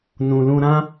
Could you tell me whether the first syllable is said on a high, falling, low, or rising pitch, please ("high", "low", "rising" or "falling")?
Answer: low